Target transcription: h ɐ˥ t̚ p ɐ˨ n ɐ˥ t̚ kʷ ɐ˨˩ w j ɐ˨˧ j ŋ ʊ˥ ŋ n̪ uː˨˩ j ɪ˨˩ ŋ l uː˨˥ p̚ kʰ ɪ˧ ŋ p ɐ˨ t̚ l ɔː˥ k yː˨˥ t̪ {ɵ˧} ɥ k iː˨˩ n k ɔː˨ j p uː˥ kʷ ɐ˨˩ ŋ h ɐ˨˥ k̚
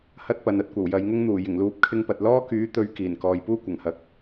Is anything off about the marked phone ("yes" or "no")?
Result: yes